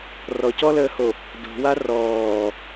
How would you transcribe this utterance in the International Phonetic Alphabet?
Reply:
r ɔ c ɔ l əː h o | d o̤ w a r ɔː

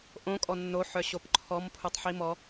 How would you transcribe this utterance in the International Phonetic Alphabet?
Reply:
ʔ õ kʼ ɔ nː o ħ œ ɕ o p ǃʰ ɔ m pʰ u tˤ ħ i m ɔ

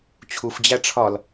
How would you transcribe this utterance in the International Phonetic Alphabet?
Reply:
t͡ɕʰ u f d͡ʑ æ ʈ͡ʂʰ ɒ l

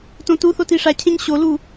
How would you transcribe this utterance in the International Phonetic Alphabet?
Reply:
t õ t u θ o t i ʂ a cʰ ẽ ɲ ɕ o l u

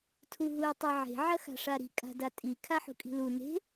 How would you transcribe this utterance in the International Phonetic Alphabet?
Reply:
tʰ u ɦ u ɪ̯ tˤ e ʕ e̤ ʕ ɐ x a̤ ʂ a ɾ i̤ kʼ a̤ d a tʼ i kʰ a ħ ṳ kʼ i̤ l u n e̤

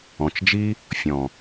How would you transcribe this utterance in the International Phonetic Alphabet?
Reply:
ɔ̃˨ t͡ʃ d͡ʒ i˦ | fʲ ɔ̃˨

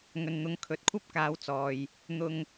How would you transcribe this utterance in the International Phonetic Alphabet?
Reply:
ŋ ɵ˨ n n̪ ʊ˨˧ ŋ kʰ ɵ˨ t̚ kʷʰ ɐ˥ p̚ k aː˨˧ w t͡s ɔː˨ j | n̪ ʊ˧ ŋ

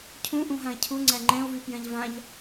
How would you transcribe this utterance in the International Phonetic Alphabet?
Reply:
cʰ ũ ʔ ũ ɦ ã e̯ cʰ u ŋ͡ǀ æ ŋ͡ǃ ɛ̃ o̯ v y p j ɛ̃ ʎ v ã ʎ

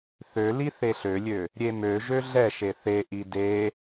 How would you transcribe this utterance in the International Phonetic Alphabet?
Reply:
θ ø l i θ e ɬ ø lʲ ø | ɾʲ e m ø ʒ ø ɮ ɛ ʃ e θ e ʔ i d e

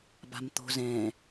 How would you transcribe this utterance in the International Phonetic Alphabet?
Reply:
b a̤ m t̪ o̤ z ɛ̃

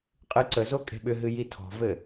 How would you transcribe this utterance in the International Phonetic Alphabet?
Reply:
qʼ ɨ ǀ ə z o kʼ e̤ ɓ ʏ ɦ ɨ j i tʰ ɔ̤ v ɘ

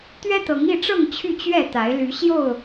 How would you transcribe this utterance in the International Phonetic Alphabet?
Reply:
t̪ ɥ ɛ˦ t̪ ɤ˨˦ ŋ i˥˨ ʈ͡ʂ ɤ˥˨ ŋ t͡ɕʰ y˥˨ t͡ɕ ɥ ɛ˥˨ t̪ a˨˦ ɪ̯ l y˨˦ ɕ j o˥˨ ʊ̯

